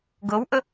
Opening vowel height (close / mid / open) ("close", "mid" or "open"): mid